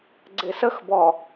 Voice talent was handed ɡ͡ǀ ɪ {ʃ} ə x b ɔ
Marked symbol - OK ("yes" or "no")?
no